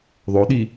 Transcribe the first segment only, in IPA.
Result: ðˤ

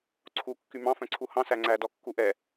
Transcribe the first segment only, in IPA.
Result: ǀʰ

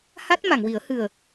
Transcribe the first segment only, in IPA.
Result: h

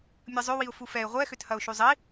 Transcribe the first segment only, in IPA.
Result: mʲ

